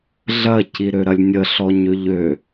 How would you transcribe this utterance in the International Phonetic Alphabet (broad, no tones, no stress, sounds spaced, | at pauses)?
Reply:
ɮ ɐ c i ɾ ø ɾ ɐ lʲ nʲ ə ɬ ɔ ɲ ø ʎ ø